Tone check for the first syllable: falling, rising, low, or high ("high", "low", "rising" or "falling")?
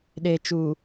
low